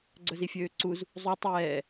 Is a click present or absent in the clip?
present